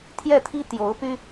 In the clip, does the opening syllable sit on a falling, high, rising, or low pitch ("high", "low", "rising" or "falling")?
falling